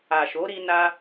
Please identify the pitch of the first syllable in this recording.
low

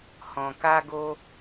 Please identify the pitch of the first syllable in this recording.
low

